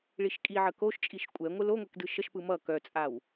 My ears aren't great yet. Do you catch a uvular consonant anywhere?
no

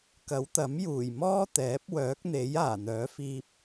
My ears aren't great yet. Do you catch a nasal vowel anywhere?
no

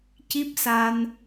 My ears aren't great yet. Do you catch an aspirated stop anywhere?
no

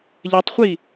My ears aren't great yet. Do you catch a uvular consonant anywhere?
yes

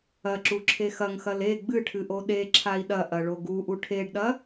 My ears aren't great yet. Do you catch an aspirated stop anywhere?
yes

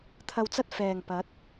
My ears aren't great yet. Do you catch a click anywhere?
no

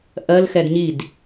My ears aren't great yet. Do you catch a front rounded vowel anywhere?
no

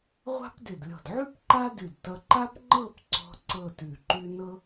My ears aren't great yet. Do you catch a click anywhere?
yes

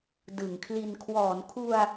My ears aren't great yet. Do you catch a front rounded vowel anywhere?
no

